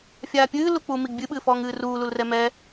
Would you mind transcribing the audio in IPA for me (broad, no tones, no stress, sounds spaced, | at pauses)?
fʲ aː pʲ ɨː l u k͡p uː m i ɡ bʲ ɨ ɓ ɨː f ɔː ŋ ɨː r uː l u l r ɛ m ɛ